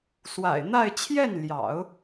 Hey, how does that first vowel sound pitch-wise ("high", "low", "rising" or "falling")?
low